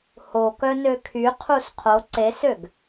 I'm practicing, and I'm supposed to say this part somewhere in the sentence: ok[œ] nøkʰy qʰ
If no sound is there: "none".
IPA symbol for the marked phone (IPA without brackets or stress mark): œ